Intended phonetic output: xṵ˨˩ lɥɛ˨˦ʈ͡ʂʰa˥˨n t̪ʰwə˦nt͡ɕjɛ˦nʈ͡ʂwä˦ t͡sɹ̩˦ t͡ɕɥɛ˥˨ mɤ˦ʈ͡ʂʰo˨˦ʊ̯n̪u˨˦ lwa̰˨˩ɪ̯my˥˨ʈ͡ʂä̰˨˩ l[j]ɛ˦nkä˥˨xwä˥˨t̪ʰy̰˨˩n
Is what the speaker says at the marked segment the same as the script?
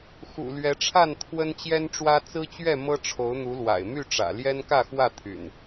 yes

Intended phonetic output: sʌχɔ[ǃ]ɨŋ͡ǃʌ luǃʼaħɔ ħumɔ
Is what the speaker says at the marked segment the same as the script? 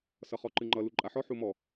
yes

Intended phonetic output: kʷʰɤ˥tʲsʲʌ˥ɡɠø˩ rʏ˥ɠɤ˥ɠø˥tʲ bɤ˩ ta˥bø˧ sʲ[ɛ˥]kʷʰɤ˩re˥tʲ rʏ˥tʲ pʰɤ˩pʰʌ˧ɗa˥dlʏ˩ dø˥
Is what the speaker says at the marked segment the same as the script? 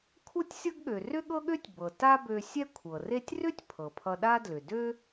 yes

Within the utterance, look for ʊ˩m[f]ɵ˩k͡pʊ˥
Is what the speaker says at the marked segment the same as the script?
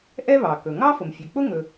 no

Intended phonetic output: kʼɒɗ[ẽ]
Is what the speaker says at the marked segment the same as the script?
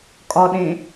yes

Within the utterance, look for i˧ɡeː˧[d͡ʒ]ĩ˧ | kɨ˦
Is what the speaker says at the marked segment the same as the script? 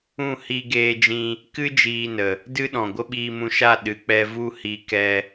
yes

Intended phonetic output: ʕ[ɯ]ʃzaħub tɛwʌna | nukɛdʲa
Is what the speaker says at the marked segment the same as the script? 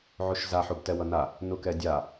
no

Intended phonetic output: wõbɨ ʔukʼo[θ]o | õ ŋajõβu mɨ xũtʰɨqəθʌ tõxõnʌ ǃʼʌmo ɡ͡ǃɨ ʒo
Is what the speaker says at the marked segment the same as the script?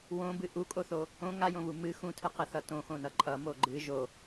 yes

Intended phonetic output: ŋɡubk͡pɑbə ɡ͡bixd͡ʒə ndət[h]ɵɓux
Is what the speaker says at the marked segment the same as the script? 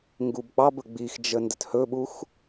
yes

